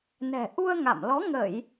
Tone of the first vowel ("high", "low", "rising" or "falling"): low